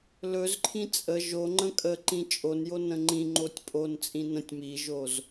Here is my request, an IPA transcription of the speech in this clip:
l ɵ z ǃʰ ĩ t͡sʼ ə ʒ o ŋ͡ǃ ə̃ kʼ ə ǃ ĩ t͡ʃʼ o n j o n ə̃ ŋ͡ǃ ĩ ŋ͡ǃ o tʲ pʼ o n t͡sʼ ĩ n ə̃ tʲ m i ʒ o z

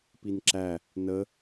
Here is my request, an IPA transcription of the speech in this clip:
p i n ǁ æ | n ə

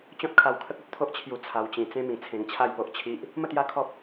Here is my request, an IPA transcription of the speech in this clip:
t͡ɕ ɔ̃˦ t̚ kʰ a˧ w kʰ ə˦ k̚ u˦ t̚ t̪ʰ o˦ ʔ t͡ɕʰ j u˧ t͡sʰ a˧ w t͡ɕ ĩ˧ t͡s ẽ˧ m ĩ˨˩ t͡sʰ ẽ˧ ŋ t͡ɕʰ a˥˧ j p o˦ ʔ t͡ɕʰ i˦ ʔ | m ə˥˧ t̪ j a˦ kʰ ɔ˦ p̚

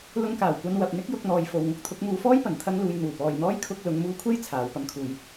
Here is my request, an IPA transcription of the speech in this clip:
l ʊ˧ ŋ k aː˨˩ w kʷ ɐ˧ n w ɐ˨ p̚ n̪ ɪ˥ k̚ j ʊ˧ k̚ n̪ ɔː˨ j f o˨ w ŋ ʊ˥ k̚ t̪ʰ ʊ˨˥ k̚ m uː˧ f ɔː˥ j p ɐ˨˩ n t̪ʰ ɐ˥ ŋ l uː˧ j n̪ uː˨˩ p ɔː˨ j n̪ ɔː˥ j kʰ ʊ˧ k̚ l ʊ˨˧ ŋ m uː˧ kʷʰ e˥ j t͡sʰ aː˨˧ w p ɐ˧ m kʰ uː˨ j

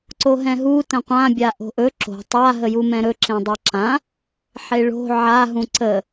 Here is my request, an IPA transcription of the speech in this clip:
ǀ o ɦ ɛ̃ ɦ u t ə̃ qʷ ã bʲ a ʔ o̤ ʔ ɵ ǁ o̤ tˤ a ɦ ə j u m ɛ̃ ɾ ɵ ǁ ẽ dˤ a ǁ ã | ħ e ɭ o̤ ʕ a ɦ ũ ǀ ə

